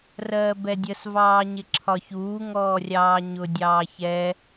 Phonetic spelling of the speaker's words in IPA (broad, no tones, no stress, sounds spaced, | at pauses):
r ɜː b ɛ dʲ ə s v ɑː ɲ ɪ ǁʰ ɒ ç uː ŋ ɔː rʲ ɑː ɲ ʊ dʲ ɑː ç ɛ